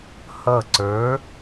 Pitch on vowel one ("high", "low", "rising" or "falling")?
falling